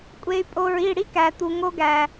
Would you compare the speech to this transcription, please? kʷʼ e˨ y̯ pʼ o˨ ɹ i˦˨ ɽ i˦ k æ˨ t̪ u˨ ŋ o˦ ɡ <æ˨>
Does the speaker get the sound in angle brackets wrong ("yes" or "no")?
no